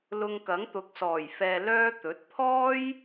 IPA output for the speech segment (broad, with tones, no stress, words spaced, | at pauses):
lʊ˧ŋkɐ˨˥ŋt̪ʊ˨˥k̚sɔː˨˩j fɛː˧lœː˥ t̪ɵ˨˥t̚ pʰɔː˥j